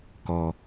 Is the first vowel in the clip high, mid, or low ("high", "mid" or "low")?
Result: mid